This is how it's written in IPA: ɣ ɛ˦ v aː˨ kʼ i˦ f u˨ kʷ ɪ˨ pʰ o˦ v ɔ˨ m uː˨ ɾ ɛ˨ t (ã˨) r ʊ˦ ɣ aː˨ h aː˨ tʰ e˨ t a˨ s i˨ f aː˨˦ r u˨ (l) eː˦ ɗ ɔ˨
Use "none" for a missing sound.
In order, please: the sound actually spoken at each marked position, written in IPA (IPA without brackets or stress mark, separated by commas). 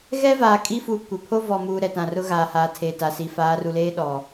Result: ã˨, l